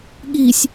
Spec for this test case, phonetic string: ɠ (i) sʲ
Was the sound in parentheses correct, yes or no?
yes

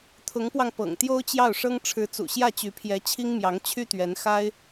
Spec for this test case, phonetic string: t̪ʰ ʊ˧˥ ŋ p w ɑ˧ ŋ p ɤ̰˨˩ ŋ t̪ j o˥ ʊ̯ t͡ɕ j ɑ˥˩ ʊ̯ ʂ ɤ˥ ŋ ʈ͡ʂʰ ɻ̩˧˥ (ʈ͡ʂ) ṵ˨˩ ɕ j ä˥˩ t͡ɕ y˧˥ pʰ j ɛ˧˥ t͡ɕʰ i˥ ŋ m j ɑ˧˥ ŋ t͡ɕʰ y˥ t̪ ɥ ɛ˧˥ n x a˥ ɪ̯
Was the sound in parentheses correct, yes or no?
no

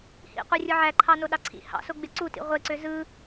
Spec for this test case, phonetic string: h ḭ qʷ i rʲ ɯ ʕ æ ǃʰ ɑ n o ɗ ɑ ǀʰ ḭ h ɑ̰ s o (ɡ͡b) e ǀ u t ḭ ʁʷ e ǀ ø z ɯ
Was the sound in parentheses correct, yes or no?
yes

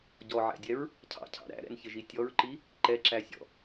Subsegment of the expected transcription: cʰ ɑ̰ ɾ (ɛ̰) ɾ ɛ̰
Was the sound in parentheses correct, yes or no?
no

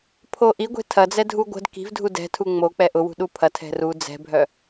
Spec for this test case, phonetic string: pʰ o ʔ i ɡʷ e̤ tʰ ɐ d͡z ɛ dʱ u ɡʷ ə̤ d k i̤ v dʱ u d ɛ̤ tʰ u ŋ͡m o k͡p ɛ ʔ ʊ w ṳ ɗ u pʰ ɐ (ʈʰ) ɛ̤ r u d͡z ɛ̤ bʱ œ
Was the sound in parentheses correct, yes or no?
no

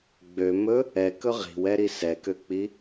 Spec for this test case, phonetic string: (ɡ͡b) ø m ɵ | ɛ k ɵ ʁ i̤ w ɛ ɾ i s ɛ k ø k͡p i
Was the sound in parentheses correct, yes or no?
yes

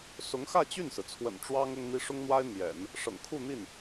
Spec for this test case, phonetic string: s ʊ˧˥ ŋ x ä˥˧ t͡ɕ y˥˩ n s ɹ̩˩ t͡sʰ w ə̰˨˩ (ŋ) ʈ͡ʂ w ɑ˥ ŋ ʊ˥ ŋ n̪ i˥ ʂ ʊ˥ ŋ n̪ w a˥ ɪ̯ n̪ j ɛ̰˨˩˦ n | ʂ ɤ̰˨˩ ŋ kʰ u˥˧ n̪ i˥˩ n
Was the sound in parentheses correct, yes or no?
no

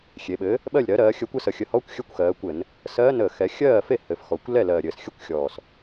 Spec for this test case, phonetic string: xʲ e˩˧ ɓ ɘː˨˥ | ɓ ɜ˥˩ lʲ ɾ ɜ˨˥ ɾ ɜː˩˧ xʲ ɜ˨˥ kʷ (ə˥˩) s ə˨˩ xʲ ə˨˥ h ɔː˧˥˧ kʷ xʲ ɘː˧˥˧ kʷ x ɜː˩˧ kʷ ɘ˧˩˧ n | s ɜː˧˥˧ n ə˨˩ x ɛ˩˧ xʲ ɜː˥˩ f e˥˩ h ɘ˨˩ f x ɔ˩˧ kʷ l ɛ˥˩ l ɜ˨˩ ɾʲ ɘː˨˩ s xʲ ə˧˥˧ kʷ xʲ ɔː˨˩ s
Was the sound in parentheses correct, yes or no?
no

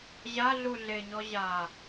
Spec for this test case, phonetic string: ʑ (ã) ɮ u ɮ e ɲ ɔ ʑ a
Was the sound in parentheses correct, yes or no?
no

